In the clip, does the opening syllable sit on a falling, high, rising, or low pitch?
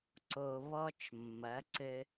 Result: low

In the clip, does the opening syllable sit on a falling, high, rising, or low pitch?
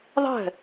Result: falling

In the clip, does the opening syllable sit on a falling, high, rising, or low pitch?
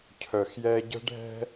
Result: low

